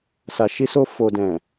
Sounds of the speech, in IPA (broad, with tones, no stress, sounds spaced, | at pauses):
s a˨ ʃ i˧ s o˧ f o˨ d ɛ̃˨